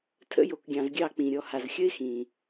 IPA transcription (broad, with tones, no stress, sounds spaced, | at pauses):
tʰ ə̰˦ j o˨ k ɡʲ ɑ̃˨ z ɡʲ ɑ˦˨ k͡p ĩ˨ ɾʲ ɔ˨ h a˨ z xʲ ə˦ ɪ̯ x ĩ˨